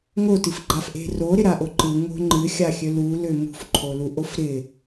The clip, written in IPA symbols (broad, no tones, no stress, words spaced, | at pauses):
ŋotɨfɡ͡ǃafʔe̤ roɾɪɾaʔo ǃɯŋo̤ ŋ͡ǃɨxʲaxʲø lulø mṳfǃʰoluʔof ɾɪ